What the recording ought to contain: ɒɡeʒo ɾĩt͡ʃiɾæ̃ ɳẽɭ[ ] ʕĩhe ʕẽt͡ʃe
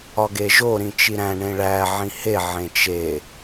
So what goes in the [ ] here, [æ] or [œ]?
æ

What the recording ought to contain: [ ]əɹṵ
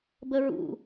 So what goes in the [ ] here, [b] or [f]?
b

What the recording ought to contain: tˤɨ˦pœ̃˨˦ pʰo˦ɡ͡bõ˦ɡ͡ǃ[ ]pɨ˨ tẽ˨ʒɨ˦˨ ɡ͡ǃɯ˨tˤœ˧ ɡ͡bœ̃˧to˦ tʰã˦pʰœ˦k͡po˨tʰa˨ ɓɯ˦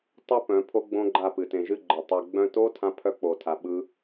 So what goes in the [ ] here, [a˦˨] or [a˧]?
a˦˨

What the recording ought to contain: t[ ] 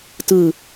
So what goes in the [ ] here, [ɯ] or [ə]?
ɯ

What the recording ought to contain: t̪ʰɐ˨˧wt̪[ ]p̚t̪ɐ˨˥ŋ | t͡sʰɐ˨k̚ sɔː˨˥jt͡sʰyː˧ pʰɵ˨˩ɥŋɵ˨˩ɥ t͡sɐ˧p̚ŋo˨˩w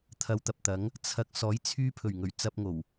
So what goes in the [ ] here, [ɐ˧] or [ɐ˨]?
ɐ˨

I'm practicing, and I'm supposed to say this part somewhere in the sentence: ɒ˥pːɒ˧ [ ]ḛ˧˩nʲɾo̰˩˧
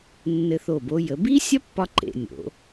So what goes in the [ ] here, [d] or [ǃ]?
ǃ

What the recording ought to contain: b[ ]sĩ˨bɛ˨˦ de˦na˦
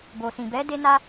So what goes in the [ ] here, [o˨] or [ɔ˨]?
o˨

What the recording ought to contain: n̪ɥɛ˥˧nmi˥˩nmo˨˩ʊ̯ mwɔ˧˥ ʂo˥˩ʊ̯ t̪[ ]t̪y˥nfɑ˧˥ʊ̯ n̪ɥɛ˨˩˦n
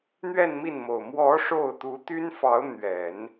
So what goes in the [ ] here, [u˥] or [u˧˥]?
u˧˥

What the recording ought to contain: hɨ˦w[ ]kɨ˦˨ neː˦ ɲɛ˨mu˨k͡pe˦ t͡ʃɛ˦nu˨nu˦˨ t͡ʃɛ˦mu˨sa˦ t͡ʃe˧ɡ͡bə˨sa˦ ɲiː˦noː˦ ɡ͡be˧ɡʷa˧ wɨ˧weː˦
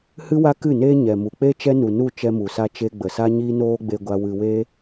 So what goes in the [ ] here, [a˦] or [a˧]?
a˦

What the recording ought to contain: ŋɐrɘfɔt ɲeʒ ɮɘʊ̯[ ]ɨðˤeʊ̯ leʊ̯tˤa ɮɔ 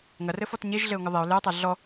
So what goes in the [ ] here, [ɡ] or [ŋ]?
ŋ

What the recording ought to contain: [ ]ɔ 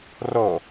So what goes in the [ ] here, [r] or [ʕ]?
r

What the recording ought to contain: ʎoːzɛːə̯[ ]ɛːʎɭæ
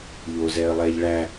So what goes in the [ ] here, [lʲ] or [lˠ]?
lˠ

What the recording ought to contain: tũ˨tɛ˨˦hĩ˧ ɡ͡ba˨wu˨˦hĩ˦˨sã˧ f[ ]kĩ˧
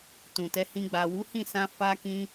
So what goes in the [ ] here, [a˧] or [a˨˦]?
a˧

